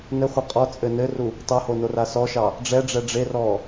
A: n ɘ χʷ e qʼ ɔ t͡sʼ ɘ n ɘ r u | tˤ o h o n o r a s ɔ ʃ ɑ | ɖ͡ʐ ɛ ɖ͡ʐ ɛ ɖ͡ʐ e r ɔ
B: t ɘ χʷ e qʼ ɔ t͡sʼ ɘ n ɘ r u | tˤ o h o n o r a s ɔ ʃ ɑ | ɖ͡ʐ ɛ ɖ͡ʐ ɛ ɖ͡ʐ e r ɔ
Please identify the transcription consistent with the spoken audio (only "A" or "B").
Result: A